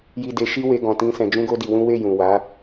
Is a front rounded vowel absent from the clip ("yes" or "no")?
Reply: yes